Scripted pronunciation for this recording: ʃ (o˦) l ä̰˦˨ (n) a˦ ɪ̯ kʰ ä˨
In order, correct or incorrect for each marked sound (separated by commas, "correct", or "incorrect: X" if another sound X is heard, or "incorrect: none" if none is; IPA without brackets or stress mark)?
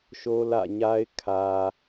correct, incorrect: ɲ